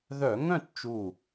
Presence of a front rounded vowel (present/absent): present